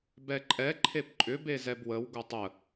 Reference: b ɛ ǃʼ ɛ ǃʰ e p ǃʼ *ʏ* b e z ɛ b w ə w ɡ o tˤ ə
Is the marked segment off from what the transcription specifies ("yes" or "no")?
no